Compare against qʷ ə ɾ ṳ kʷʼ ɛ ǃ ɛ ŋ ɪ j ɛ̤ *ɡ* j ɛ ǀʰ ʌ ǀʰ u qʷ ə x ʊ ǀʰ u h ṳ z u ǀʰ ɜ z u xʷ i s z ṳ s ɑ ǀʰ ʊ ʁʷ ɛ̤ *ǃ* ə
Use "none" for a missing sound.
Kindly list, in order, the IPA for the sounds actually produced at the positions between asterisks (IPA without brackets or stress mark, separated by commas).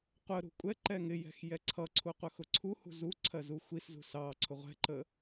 x, ǃ